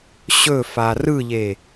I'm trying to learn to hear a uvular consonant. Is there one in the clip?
no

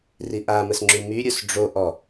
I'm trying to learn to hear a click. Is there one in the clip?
yes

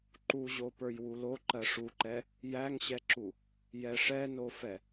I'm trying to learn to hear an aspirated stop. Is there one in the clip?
no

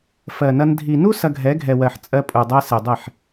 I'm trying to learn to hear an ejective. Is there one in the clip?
yes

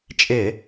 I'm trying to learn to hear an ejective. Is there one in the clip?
yes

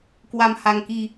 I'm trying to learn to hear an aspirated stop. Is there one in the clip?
no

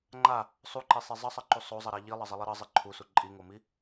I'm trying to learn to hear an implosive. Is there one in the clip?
no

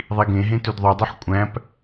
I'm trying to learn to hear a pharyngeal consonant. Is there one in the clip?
yes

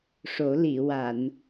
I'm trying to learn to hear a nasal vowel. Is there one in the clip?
no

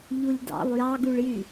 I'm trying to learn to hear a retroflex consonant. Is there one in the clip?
yes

